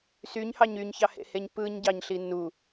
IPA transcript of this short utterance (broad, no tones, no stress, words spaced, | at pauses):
syɲhɑɲ yɲçɑhḛheɲ pɯɲɟɑɲɬi nu